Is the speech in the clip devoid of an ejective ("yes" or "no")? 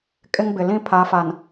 no